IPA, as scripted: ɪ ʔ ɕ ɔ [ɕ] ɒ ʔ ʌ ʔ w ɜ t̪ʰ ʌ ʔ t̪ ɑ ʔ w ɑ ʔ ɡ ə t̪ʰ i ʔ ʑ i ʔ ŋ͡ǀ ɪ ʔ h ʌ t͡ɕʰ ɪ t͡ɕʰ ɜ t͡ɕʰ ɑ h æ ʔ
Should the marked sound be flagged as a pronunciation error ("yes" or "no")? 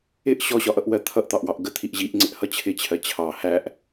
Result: no